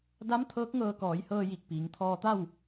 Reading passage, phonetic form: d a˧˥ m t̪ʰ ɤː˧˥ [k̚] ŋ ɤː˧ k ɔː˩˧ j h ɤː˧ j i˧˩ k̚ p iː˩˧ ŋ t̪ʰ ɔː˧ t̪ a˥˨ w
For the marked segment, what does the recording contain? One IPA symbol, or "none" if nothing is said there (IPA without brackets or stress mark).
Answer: k̚